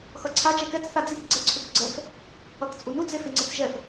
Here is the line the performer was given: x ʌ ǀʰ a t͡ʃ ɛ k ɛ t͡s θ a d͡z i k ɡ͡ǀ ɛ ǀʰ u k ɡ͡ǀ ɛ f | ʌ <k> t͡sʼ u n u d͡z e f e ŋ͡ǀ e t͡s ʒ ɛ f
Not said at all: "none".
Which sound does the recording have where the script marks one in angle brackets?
k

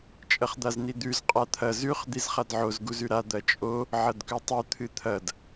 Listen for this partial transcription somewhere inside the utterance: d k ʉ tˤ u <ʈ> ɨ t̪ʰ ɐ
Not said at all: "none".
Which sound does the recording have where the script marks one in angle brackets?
t̪ʰ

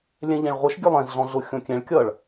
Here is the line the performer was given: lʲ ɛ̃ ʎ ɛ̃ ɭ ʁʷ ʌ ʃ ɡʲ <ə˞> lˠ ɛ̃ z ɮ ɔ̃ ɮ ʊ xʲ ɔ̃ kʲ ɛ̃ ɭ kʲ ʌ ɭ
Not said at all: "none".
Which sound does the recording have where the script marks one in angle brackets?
ə˞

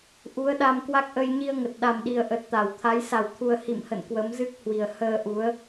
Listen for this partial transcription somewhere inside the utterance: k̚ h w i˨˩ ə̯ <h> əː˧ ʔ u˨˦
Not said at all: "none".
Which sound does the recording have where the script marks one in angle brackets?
h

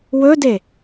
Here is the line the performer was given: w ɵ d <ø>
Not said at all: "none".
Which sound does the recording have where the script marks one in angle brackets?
e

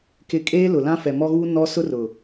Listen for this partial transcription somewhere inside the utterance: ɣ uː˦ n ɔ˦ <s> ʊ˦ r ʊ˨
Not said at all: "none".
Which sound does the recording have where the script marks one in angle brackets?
s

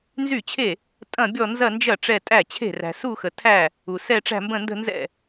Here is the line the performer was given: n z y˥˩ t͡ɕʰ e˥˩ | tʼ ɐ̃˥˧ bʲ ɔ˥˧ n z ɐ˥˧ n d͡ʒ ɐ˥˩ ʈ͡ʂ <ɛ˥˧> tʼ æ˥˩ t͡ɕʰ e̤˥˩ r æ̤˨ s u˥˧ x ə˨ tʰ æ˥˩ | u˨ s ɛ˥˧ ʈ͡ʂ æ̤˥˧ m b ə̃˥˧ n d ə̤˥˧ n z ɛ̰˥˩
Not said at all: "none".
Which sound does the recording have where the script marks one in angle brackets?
ɛ˥˧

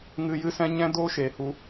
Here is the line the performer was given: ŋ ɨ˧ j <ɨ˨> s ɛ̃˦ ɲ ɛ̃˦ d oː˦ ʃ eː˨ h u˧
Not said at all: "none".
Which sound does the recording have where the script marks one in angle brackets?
ɨ˦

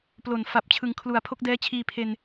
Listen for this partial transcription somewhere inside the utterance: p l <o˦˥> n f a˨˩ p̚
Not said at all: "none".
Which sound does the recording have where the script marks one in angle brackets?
o˨˩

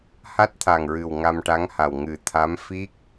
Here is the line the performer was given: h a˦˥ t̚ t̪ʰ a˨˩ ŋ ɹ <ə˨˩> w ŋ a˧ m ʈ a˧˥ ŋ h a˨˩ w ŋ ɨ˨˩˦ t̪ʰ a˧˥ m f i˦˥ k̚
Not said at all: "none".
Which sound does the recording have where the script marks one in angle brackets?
ɨ˨˩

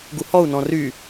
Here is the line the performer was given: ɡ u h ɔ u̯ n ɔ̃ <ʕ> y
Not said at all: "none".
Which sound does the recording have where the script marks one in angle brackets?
r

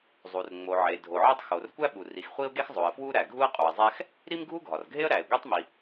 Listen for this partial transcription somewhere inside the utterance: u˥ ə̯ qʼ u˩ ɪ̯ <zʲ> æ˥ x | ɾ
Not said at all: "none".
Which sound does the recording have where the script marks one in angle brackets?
zˤ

